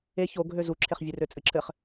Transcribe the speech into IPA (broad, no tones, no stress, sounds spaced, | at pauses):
e ç o ɡʱ ø z u ǁʰ e χ vʲ ɨ r ø t͡sʼ ɨ ǁʰ ɘ χ